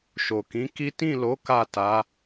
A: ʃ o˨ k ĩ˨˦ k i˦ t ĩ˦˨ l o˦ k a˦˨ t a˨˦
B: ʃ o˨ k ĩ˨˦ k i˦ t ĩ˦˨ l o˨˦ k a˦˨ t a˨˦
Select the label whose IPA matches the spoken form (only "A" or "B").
B